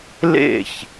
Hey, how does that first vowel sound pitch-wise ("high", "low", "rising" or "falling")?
falling